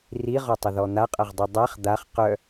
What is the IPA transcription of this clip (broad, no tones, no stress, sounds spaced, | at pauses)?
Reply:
r i ʁ ɔ tˤ ə ð ɔ n̪ a qʼ ɐ ʁ dˤ y dˤ a χ d̪ a χ q œ